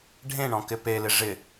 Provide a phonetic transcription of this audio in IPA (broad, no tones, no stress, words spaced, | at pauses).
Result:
ɖʱẽɳɔ̃kɪ pelɪ ʐɪ